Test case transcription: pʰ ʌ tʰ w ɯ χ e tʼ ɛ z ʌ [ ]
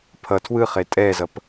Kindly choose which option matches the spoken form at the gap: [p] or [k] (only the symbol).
p